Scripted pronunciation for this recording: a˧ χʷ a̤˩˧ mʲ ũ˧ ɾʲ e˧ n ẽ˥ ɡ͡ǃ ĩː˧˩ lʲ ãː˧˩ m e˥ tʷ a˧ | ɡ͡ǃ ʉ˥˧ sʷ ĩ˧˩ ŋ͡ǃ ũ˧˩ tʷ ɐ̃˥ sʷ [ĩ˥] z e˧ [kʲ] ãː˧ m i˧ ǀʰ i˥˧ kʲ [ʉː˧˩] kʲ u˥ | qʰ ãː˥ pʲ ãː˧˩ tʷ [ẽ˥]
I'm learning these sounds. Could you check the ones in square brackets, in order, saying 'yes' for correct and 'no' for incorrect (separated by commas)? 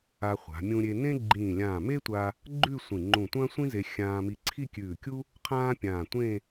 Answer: yes, no, yes, no